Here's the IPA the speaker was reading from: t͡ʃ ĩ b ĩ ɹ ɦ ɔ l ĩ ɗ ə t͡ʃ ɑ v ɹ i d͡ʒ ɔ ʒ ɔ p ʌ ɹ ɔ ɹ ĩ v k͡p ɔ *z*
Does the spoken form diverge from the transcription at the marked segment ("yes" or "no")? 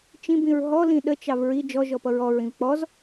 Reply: no